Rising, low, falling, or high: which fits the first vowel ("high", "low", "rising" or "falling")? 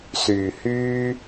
low